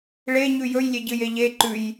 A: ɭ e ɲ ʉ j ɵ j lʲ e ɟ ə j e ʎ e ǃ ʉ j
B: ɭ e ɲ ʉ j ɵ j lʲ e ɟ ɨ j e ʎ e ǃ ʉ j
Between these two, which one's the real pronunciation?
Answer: B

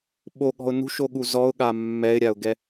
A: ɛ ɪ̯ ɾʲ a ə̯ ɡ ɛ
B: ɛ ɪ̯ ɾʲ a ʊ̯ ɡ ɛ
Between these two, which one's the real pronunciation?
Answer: B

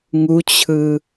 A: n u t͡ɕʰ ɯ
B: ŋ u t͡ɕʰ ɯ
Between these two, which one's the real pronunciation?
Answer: B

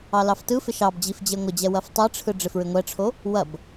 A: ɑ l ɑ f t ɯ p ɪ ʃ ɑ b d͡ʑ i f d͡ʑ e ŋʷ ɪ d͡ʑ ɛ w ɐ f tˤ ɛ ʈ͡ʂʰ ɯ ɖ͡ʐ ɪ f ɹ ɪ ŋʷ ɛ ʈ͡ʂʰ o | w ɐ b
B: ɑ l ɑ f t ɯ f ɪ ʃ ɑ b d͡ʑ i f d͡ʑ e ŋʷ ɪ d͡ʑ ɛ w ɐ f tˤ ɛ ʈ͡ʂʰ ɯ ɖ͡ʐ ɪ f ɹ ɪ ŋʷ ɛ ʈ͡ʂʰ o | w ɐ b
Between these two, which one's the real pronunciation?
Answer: B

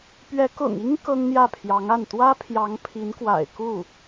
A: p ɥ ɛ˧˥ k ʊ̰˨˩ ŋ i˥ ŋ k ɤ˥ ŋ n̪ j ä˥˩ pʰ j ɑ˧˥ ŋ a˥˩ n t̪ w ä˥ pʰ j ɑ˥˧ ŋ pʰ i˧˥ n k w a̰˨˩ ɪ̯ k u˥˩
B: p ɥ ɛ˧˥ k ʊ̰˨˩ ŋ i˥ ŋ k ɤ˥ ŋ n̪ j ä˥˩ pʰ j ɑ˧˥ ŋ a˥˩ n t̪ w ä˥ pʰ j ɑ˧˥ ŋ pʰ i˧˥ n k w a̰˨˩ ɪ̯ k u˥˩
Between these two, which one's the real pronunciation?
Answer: B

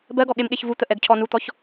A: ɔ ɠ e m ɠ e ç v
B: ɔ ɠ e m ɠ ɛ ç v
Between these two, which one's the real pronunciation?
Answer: A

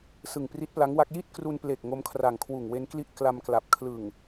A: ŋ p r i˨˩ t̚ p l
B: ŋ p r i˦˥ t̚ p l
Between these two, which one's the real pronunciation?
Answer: B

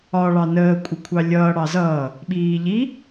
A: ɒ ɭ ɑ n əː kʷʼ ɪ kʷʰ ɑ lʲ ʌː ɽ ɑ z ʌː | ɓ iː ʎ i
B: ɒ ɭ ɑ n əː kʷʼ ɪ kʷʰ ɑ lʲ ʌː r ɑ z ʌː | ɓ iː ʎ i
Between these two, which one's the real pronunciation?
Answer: A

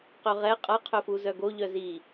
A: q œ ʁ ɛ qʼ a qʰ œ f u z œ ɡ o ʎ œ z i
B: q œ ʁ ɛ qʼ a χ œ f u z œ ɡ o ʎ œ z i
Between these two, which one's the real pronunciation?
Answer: A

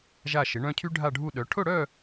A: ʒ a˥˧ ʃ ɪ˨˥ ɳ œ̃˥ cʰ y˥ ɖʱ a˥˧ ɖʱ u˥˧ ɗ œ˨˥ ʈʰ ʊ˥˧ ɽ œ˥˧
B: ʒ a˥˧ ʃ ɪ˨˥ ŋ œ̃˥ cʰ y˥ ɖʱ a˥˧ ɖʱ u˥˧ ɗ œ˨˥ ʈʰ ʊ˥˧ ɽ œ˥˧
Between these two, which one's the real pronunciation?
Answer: A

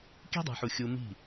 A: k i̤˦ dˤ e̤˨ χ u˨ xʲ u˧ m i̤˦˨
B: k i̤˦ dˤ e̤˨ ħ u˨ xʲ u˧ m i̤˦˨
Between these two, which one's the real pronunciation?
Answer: B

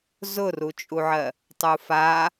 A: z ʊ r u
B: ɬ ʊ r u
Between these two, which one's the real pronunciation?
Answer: A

